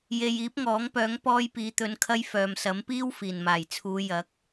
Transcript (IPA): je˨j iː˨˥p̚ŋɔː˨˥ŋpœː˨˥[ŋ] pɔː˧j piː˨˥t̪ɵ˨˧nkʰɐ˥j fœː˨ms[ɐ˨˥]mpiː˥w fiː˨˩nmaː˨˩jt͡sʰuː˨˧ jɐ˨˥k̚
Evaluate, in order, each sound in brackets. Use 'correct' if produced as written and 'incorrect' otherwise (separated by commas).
correct, correct